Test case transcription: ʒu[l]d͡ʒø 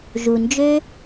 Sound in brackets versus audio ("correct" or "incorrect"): incorrect